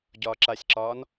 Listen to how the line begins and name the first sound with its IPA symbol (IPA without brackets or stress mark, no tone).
ɟ